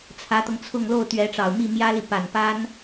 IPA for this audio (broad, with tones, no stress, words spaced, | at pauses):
t͡sʰä˧˥t̪ɤ˧ŋt͡sʰʊ˥˧ŋ lo˥˩ʊ̯t̪ɥɛ˧˥ʈ͡ʂɑ˨˩ʊ̯ mi˥˩mjä˥li˨pa˨˩n pa˥n